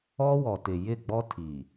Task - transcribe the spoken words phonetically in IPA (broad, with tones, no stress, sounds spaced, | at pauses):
ɔ˦ w ɔ˨ t ɪ˨ j ɪ˦˨ ɡ͡b ɔ˦ tʰ i˨